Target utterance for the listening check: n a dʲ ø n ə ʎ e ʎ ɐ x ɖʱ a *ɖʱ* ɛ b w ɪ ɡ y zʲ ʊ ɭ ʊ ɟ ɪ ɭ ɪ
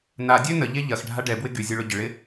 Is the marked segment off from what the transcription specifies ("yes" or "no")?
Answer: yes